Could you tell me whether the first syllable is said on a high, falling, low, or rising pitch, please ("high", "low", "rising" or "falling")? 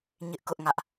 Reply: high